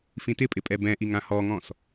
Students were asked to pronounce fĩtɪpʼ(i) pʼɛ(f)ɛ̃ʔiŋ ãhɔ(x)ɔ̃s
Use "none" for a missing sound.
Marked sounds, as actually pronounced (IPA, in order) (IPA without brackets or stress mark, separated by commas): ɪ, b, ŋ